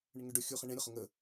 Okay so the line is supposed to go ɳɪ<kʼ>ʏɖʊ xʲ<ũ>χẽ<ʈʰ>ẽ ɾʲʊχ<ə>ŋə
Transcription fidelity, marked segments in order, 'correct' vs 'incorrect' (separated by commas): incorrect, incorrect, incorrect, incorrect